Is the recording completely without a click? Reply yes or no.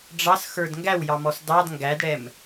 yes